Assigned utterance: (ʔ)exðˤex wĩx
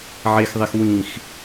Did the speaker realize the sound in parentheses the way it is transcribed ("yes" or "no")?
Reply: no